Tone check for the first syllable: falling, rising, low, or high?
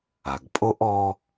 low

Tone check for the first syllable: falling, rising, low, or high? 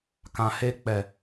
low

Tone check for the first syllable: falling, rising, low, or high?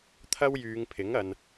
high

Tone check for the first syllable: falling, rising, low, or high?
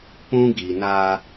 high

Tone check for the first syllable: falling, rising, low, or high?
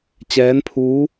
rising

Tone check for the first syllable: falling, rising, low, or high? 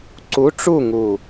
rising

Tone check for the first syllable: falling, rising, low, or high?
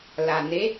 low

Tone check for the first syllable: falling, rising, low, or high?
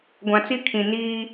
low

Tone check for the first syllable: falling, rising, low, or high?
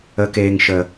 low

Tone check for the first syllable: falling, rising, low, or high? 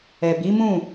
low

